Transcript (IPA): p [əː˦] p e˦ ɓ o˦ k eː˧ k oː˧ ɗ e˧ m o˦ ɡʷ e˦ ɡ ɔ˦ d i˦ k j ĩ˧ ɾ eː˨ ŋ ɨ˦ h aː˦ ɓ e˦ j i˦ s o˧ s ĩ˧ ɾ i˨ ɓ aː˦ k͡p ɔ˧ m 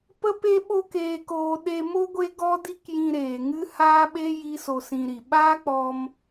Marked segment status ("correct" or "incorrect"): incorrect